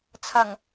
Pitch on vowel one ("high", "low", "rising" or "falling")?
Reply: low